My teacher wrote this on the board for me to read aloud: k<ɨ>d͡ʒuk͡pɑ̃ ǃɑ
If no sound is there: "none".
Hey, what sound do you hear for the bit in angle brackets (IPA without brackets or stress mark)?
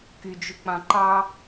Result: y